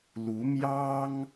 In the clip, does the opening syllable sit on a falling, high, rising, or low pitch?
rising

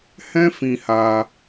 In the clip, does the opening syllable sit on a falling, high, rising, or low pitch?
high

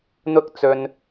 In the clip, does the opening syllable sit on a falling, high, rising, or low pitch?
high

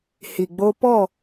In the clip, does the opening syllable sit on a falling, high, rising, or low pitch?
low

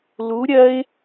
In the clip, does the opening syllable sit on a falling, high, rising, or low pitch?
rising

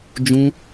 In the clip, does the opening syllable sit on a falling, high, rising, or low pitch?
high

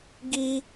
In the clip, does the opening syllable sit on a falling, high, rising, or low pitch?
high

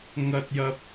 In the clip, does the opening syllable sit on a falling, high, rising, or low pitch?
high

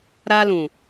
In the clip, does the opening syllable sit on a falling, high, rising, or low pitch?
high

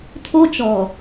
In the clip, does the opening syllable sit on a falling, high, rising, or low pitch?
high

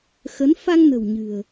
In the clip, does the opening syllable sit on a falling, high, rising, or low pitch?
rising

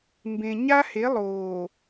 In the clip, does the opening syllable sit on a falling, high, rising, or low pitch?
low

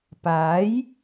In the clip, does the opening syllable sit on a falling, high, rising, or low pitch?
rising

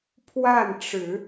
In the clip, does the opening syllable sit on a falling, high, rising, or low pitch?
falling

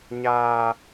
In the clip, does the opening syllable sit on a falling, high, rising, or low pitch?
high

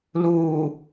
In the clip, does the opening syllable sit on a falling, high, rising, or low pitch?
low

